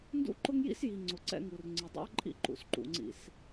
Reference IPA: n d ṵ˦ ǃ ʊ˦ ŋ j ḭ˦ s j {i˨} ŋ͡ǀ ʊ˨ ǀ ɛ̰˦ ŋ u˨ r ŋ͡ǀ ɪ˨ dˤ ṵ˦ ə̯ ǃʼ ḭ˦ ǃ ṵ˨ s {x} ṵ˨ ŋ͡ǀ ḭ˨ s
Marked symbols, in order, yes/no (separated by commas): yes, no